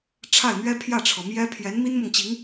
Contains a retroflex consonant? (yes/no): yes